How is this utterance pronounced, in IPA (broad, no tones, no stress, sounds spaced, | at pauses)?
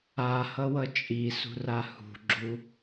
a h ʌ w ʌ t͡ʃʼ i s ṳ r a h ṳ ɡ͡ǁ u